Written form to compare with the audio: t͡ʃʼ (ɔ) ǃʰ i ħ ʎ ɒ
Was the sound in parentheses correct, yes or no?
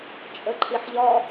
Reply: no